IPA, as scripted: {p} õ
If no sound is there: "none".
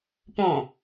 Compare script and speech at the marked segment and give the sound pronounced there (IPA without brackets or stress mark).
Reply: p